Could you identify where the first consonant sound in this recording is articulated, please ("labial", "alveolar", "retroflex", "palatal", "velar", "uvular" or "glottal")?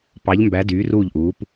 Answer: labial